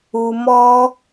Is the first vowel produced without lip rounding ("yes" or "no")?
no